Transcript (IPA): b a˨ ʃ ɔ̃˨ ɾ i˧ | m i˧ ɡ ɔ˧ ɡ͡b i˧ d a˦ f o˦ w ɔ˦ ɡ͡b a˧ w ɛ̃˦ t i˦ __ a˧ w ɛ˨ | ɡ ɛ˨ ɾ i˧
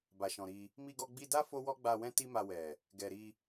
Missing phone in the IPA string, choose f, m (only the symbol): m